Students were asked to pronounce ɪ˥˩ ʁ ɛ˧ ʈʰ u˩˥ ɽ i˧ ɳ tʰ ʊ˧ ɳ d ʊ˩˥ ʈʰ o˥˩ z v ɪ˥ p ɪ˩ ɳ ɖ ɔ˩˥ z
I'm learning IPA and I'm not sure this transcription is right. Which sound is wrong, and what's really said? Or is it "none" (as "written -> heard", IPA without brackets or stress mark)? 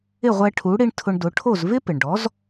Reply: ʁ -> ʁʷ